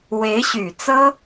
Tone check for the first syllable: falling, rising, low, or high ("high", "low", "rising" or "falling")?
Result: rising